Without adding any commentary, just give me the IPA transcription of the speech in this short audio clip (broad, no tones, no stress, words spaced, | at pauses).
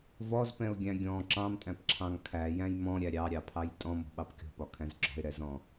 vɔzpɛ̃ʊ̯ɡʲæ̃ ɡʲɔ̃ ǁɑ̃mtʼæ̃pǁʰɑ̃ŋ kʰæjæ̃j mɔ̃ɾʲæ ɾʲɑɾʲɑpʰɑj tʼɔ̃mɔ̤ɓɑp kʲɔ̤pɒkʰæ̃z ɡ͡ǁɔ̤ɪ̯ɾɛzɔ̃